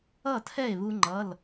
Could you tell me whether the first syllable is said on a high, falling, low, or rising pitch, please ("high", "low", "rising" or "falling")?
falling